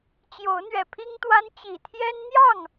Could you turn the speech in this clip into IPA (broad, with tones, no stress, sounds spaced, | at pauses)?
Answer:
t͡ɕ j o˨˦ ʊ̯ n̪ ɥ ɛ˨˩ pʰ i˦ ŋ t̪ w a˦ n t͡ɕ i˨˩ t̪ʰ j ɛ˦ n n̪ j ɑ˥˨ ŋ